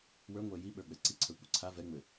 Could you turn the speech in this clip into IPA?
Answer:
wə˞ŋʷɛ jiɓə˞ɡ͡bɛ ǀiǀʰə˞kʷə˞ ǀʰa vɛŋ͡mɘ

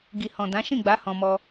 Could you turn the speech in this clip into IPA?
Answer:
ɡi˨hɔ̃˨ dã˨˦ʃĩ˦˨ɡ͡ba˨˦ hɔ̃˧ mɔ˧

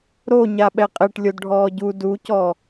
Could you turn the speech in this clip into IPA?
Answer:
ɾo ɲaɓɛqʼɛʈ lʲodɖʱɔːɟu ducɔ

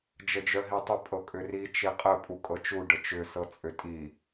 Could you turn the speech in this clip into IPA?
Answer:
d͡ʒəd͡ʒœɦitˤə pʼɤkʼʏri t͡ʃiqʼə pʼukʼɤt͡ʃu ɖət͡ʃʏ sɤt͡sʼʏtʼi

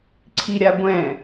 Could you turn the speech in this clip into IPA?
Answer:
ǀʰiɾʲaɡʷɛ̃

